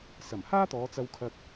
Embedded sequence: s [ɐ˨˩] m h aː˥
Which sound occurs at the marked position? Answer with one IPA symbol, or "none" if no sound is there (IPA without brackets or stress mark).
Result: ɐ˨˩